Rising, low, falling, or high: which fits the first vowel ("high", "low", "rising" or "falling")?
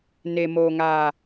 low